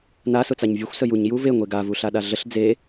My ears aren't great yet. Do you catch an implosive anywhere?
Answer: yes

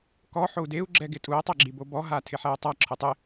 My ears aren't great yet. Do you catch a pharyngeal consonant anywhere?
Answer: yes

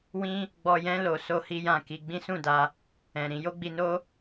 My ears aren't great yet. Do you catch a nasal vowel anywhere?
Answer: yes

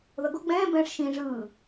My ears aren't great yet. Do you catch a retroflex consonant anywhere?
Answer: yes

